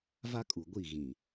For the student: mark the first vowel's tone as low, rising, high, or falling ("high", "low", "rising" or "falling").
high